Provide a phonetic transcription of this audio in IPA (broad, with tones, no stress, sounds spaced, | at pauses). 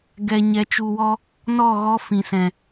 ɡ ɛ˨ ɲ ɛ˨ t͡ʃ u˨ w ɔ˧ | n ɔ˦˨ ɣ ɔ˧ f ĩ˨ s ɛ̃˨